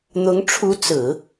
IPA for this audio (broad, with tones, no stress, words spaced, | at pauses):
n̪ʊ˧˥ŋ ʈ͡ʂʰu˧˥t͡sɹ̩˨˩˦